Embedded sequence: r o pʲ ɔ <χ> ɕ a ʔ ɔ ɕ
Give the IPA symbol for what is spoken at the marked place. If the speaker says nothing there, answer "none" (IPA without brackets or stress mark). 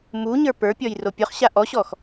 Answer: χ